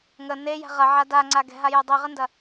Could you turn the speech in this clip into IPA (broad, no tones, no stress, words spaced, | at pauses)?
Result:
ŋə nejɛ̤ ʁɐʕa daŋ͡ǀa ɡɛ̤ɦajo dˤiʁəndɐ